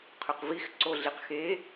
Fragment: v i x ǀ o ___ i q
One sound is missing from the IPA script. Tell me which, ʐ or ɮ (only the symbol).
ɮ